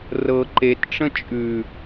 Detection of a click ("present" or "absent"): present